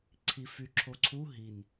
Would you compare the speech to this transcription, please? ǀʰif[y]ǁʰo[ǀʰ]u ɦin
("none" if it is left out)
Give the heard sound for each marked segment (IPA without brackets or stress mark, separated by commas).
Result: y, ǀʰ